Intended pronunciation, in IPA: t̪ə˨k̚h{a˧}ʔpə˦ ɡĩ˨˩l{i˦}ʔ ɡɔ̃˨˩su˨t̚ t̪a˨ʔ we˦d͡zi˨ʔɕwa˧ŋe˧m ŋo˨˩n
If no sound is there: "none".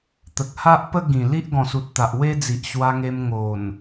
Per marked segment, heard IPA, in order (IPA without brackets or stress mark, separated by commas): a˦, i˦